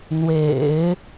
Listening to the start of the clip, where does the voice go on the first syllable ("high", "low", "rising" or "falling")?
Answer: low